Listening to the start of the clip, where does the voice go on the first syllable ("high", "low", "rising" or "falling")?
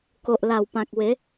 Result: low